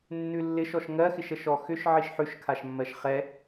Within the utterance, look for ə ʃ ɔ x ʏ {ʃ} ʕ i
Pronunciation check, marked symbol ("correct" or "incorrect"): correct